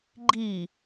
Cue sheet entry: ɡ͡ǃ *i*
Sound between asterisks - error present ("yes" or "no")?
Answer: no